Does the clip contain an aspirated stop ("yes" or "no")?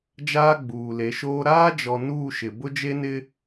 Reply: no